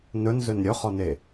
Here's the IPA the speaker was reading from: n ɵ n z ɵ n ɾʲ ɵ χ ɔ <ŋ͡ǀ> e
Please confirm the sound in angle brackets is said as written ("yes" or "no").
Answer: no